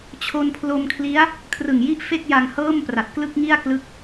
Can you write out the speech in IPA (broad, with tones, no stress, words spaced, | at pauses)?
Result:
t͡ɕʰo˧npʰlo˧mkʰli˦˥a̯ | kʰrɯ˨˩ŋji˥˩ʔ fe˥˩k̚ja˧ŋhɤː˥˩mpra˨˩t̚ klɯ˥˩k̚ŋi˥˩a̯ klɯ˦˥k̚